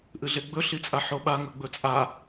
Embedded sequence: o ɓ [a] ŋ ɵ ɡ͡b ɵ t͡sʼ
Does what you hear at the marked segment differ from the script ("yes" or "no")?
no